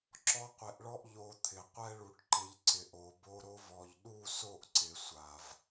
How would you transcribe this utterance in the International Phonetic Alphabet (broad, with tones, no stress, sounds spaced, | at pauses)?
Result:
ǁ ɔ˦ qʷ e˧ ʔ ɭ ɔ˦ ʔ ʎ o˧ t̪ʰ ɪ˨ qʷ ɛ˧ ɭ u˨ ʈ ǃ ɪ˨ ʎ ǀ ɪ˨ ʔ o˨ b o˧ ɾ o˧ v ɔ˨ ʎ ɗ u˦˨ s o˦˨ ʔ ǀ ɪ˨ sʷ a˨ v